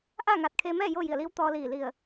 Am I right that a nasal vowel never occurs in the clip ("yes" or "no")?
yes